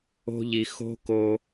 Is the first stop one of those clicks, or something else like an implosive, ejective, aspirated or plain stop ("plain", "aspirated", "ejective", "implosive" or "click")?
plain